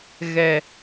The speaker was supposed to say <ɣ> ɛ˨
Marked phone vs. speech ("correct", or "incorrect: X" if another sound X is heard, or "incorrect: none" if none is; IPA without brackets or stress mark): correct